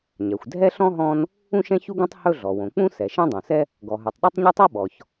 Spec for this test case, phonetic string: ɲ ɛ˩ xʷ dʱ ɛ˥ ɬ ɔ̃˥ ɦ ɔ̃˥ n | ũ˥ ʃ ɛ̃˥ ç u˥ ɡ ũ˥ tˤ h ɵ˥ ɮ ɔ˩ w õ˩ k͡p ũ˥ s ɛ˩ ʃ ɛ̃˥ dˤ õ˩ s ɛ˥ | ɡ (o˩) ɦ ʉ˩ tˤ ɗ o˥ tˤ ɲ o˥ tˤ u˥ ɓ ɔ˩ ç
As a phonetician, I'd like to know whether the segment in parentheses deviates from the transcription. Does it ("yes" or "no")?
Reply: yes